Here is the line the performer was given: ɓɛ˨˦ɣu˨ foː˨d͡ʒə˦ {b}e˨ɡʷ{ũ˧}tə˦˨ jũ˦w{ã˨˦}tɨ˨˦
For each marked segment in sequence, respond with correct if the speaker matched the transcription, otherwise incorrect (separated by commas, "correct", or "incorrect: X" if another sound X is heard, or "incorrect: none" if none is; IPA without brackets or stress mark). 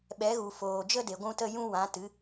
incorrect: d, correct, correct